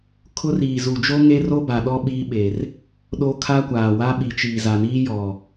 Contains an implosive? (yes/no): yes